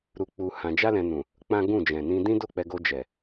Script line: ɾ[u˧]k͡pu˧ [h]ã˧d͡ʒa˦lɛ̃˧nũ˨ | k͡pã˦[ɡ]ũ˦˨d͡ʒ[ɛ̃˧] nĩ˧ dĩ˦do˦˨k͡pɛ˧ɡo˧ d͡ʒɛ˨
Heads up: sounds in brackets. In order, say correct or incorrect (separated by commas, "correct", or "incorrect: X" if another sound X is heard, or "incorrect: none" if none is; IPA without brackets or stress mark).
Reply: correct, correct, correct, incorrect: ɛ̃˨